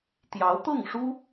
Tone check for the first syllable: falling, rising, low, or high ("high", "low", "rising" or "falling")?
rising